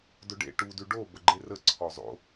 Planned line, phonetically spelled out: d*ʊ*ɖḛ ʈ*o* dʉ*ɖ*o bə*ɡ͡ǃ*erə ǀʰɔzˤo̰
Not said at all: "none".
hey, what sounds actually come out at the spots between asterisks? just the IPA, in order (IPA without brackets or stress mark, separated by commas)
ʊ, u, ɖ, ɡ͡ǃ